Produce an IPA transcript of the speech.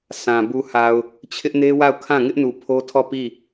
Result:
sʰã˨ bu˨ha˨ʊ̯ | t͡ɕʰɪ˦ʔne˦wa˦˨ʊ̯ kʰã˦˨ŋɪ˦ʔnu˨ pʰo˦tʰɔ˦˨pi˦˨

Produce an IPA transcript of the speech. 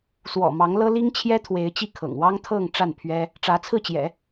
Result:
swɔ̰˨˩ mɑ˧˥ŋlɤ˥ li˥ŋt͡ɕʰjɛ˥t̪ʰwe˧˥ɪ̯ t͡ɕi˥˩kʰɤ̰˨˩ŋwɑ˥ŋ t̪ʰɤ˥˧ŋ ʈ͡ʂa˥˩npʰɥɛ˥ | ʈ͡ʂä˧˥t͡sʰɹ̩˥˩t͡ɕjɛ̰˨˩˦

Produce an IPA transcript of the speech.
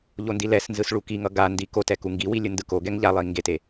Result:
ʎondilɛsnzɯs ɭukiŋʌ ɡandi kotɛ kuŋɡiwi lʲɯndɯkoɡɛŋ ʎalˠi ŋɡete

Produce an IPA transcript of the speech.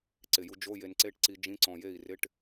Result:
ǀɪ˧˩ju˧ d͡ʒo˧˥˧je˧nǀe˧˥˧ʈǀi˧ d͡ʒĩ˧˥˧ǀɔ̃˧˩je˥˩i̯ rɪ˧˥˧ʈ

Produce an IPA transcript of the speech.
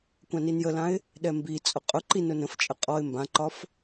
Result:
kʷãninjəlãɪ̯ | ɗɛmbi t͡sʼʊqʼʊǃi nʊnə̃ft͡ʃʼə qʼɔɪ̯ mbãǃɒf

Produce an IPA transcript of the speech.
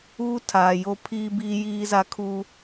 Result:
uː˦tʰaː˨joː˦pʰiː˦ biː˦jiː˦za˦kʰuː˦

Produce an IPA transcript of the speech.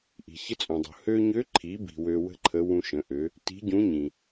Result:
ʔi̤˩ çə˧˥t͡sʼũ˩dˤṳ˩ hø˧ɲø˧˥ǃʰi˩˧bi̤˩ wø˧wə̤˥ǃʰə˧˥ wũ˧ʃə̃˩˧ʔø˩˧ | ti̤˧˥ɟũ˧˥ɲĩ˩

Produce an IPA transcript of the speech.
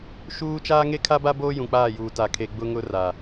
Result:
ʃuː˦ t͡ʃaː˦ŋe˦kʰa˦ba˦ boː˦jũ˨k͡paː˦˨juː˨ ta˨kʰe˨ ɡ͡bʊ˦ŋʊ˦ ra˨

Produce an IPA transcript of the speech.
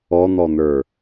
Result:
ɔn̪ɔn̪ə˞

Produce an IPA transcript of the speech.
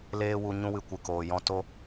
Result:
leː˧wu˨ ɲũ˦wɨ˧kʷɨ˨koː˨ jɔ̃˧ to˦

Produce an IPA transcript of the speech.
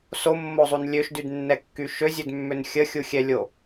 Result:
somːozˤun lʲøʃdydnːɛkːy ʃøzʲødmːøn xʲəxʲuxʲɛlʲo

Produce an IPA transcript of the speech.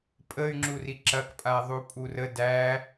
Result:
pʼəy̯ŋ͡ǁuri ǁɐkpʼa ðˤupʼurə dæ

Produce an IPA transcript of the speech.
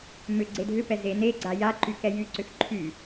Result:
mʏ ɡ͡ǀedʱʏpɛ ze neɡ͡ǀa jaǃy kɛjyǀʏx ǃʰy

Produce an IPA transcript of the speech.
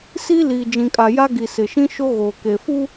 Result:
si˦ liː˨d͡ʒĩ˨kʼa˨ ja˦ ɡi˨sɪ˨ʃĩ˦ʃo˦ ɣoː˨ke˨fu˦

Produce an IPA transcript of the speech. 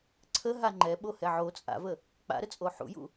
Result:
ǀʰəɦa ŋ͡ǃɛɓohɛ ʕo t͡sʼa̰və | k͡pa̰ɾət͡sʼo ħṵjṵ

